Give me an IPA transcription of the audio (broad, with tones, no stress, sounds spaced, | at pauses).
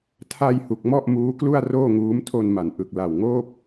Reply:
tʰ a˧ j h u˨˩ k̚ m ɔ˥˩ ʔ m uː˦˥ k l u˥˩ a̯ r oː˥˩ ŋ uː˦˥ m tʰ o˧ n m a˩˦ n ʔ ɯ˨˩ k̚ l a˨˩ w ŋ oː˥˩ p̚